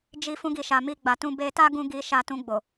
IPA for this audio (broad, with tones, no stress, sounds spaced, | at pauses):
d͡ʒ i˧ f ũ˧ ɡ i˨ ʃ a˨ m i˧ ɡ͡b a˨ t ũ˧ b e˧ t a˦ ɡ ũ˧ ɡ i˧ ʃ a˧ t ũ˧ ɡ͡b o˨